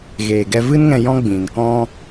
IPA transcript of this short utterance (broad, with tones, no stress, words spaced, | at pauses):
ɣeː˨ɡɛ˧vɨ˦nŋɛ̃˧ jɔ̃˦ɡ͡bĩ˨n kɔ̃˧